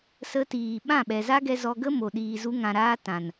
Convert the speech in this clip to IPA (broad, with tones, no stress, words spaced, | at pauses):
sə˧tiː˨ ɓã˦˨ɓɛ˨za˦ɡɛ˧ zɔ˧ɡə˦mo˨ ɗiː˨zu˧ŋã˨ɾaː˧ tã˨n